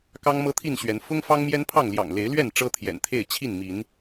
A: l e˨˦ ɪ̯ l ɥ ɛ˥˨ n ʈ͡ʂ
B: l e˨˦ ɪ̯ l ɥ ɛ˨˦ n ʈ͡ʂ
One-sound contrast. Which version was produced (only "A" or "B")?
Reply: A